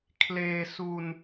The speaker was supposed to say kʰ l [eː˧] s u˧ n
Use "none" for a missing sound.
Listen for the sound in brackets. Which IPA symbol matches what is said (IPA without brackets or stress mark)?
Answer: eː˧